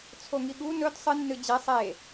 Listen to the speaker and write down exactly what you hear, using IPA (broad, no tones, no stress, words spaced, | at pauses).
t͡sʰoŋiɠu nɵd sˤɨ nːɨd͡ʑe sˤe